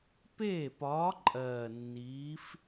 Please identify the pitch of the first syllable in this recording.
falling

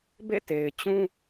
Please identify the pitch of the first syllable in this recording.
falling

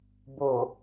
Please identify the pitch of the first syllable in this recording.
low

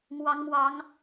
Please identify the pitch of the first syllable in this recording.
rising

